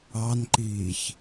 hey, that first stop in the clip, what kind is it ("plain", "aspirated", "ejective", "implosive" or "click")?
click